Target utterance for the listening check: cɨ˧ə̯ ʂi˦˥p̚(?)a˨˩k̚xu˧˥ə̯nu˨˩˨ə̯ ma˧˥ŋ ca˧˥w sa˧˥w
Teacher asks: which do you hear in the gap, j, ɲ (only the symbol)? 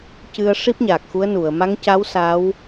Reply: ɲ